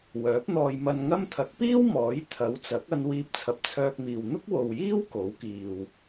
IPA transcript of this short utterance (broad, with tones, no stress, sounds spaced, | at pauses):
w œː˨˥ p̚ n̪ ɔː˧ j m ɐ˧ n ŋ ɐ˥ m t̪ʰ ɐ˨˥ k̚ p iː˥ w m ɔː˨˥ j t̪ʰ ɐ˨˥ w t͡s ɐ˨˥ k̚ ɐ˧ n w iː˧ p̚ t͡sʰ ɐ˨ p̚ t͡sʰ œː˧ k̚ m iː˨ w n̪ ʊ˥ k̚ w o˨ w j iː˥ w k o˨˥ w k iː˨ w